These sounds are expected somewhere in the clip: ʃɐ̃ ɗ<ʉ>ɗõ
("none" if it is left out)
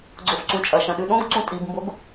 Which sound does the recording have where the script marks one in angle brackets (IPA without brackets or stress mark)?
ʉ